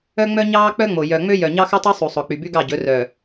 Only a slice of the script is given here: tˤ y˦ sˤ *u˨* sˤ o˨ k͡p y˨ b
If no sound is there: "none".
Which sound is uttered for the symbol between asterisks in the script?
u˨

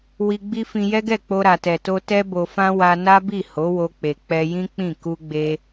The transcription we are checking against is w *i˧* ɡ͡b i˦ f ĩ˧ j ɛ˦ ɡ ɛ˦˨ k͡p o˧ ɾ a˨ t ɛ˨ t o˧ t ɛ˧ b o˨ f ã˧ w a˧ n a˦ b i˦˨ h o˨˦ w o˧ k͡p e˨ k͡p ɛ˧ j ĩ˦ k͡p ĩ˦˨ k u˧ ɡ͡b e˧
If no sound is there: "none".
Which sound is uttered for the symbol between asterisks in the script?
i˧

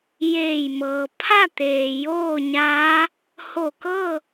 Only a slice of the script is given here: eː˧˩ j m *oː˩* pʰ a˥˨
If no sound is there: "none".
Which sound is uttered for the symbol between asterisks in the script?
ɤː˩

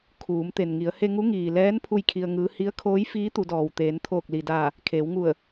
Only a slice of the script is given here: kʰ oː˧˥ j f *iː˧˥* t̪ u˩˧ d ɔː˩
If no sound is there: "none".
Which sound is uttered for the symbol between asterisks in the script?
iː˧˥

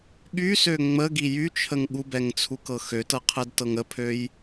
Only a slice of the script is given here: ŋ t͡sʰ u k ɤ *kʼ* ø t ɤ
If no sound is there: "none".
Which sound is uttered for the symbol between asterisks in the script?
x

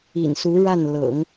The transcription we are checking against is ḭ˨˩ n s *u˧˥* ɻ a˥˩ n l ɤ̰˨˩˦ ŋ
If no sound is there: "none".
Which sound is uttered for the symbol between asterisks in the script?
u˧˥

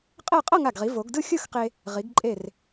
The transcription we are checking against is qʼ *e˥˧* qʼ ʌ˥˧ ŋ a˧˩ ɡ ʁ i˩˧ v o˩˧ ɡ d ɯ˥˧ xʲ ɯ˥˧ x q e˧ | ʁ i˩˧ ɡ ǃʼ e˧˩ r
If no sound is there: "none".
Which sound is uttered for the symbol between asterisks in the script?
ɛ˥˧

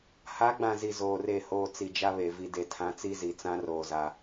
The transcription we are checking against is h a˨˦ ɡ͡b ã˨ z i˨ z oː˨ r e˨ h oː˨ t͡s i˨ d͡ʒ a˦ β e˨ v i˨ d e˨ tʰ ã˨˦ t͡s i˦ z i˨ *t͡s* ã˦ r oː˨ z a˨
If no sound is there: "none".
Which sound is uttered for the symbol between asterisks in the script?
t͡s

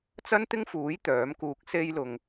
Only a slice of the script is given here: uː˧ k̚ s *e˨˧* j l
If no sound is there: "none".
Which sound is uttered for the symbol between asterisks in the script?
e˧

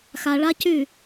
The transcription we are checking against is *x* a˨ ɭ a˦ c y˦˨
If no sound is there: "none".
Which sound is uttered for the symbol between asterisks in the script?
x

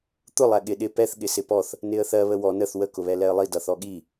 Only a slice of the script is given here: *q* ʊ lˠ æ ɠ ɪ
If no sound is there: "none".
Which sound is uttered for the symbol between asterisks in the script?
t̪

